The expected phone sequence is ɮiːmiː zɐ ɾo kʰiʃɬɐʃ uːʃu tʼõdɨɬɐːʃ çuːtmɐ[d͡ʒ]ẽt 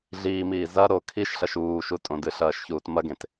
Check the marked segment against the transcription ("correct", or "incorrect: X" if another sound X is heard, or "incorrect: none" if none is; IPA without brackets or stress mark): incorrect: ɡ